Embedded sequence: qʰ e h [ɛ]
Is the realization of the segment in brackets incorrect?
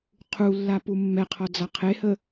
yes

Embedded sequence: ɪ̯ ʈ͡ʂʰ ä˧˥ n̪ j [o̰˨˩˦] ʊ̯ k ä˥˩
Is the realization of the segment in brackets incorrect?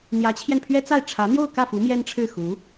yes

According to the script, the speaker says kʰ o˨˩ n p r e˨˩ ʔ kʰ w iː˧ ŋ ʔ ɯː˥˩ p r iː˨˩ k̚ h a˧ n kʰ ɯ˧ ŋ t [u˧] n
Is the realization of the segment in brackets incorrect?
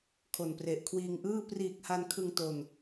yes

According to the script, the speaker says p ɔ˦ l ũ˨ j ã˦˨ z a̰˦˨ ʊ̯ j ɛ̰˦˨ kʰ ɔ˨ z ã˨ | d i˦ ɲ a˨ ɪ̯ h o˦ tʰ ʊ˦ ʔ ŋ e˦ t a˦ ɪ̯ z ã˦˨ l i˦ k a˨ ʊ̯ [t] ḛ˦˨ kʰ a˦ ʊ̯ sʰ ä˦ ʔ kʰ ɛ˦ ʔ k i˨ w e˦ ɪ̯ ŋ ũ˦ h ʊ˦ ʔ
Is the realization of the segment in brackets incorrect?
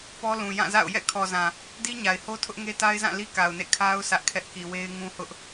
yes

